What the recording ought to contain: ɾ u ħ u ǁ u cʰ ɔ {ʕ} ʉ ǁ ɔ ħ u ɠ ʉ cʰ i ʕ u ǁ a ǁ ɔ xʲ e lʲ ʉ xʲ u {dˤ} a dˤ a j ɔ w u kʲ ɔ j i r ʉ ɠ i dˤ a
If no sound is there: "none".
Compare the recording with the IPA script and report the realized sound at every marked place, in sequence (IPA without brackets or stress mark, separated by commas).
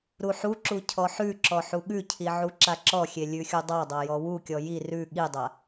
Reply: ħ, dˤ